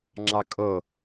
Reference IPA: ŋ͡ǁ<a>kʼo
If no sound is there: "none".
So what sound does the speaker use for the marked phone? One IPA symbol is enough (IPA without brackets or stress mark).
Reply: ɑ